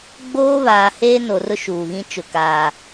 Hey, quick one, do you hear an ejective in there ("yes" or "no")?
no